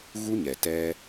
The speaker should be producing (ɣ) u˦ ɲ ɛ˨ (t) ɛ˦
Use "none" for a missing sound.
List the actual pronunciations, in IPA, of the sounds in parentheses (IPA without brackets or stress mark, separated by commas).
ɣ, t